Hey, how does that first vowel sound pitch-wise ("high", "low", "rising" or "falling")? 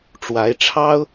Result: rising